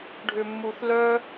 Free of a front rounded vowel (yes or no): no